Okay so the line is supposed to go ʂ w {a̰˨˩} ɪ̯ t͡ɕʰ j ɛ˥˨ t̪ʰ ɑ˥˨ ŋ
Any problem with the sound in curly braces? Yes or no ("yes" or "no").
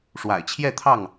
no